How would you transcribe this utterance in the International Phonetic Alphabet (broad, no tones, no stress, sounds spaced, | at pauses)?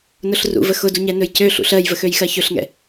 n ʊ ɬ r ṵ v ə x ʊ d u ɲ ɛ n ɵ j c ø ɬ ṵ ɬ ɜ j v ə x ø j x ɜ ç ɵ ɬ ŋ ɛ̰